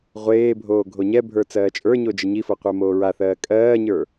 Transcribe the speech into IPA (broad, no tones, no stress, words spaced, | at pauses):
ʁʷeːbʱoː ɡʱoɲɛbʱə˞ t͡sɜːt͡ʃʼə˞ɲo d͡ʒɪɲifɤ qʷɛmoːɹaθɜː kʼɜːɲə˞